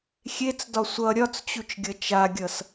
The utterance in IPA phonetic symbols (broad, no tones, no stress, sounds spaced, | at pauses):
xʲ e t͡s d ɒ sʷ ʌ ɾʲ ɒ t͡s t͡ɕ u t͡ʃ ɡʲ ʌ t͡ʃ a ɡʲ ʌ s